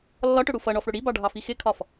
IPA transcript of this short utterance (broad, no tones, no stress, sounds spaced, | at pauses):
lː ɒ ʈ ʊ ɽ u f ʌ ɳ ɔ f ɽ ʊ ɽ i b ɑ ɖʱ ɑ f i x ɪ kʰ ɒ f